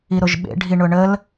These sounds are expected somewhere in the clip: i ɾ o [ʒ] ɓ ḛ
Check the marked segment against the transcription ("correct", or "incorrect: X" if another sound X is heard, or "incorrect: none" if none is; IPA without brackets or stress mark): correct